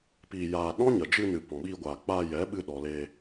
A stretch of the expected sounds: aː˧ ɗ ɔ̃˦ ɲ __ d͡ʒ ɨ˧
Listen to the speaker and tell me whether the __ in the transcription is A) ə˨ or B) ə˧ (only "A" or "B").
A